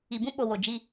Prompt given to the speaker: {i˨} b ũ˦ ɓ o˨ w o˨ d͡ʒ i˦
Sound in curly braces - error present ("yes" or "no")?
no